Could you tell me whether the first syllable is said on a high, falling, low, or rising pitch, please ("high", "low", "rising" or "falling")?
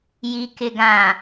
low